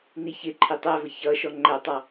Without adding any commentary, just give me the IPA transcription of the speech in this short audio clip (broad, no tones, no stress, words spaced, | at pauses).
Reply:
niçɪǃʰɪ tˤævə çʌ ʃɔŋ͡ǃætˤɑ